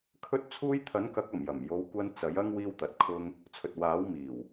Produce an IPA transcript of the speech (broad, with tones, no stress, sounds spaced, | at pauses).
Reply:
kʰ ɵ˥ t̚ t͡sʰ uː˥ j t̪ʰ ɐ˨˥ n k ɐ˨˥ k̚ ɐ˨˩ m j ɐ˨˩ m j o˨˧ w kʷ ɐ˧ n t͡s ɐ˨˥ j ɐ˥ ŋ w iː˥ w t̪ ɐ˨˥ t̚ kʰ ʊ˥ ŋ | t͡sʰ ɵ˨ t̚ w aː˨˥ w m iː˨˩ w